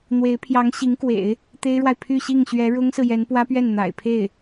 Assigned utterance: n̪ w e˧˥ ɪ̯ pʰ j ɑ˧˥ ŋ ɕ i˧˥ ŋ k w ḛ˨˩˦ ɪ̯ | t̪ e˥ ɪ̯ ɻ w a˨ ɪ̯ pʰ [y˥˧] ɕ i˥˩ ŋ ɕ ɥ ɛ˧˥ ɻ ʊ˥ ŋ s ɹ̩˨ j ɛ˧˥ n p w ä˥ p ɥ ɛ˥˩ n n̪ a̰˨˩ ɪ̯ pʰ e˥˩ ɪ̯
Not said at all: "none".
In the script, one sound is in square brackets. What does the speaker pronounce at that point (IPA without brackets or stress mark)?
y˥˧